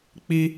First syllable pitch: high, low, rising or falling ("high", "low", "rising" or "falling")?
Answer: high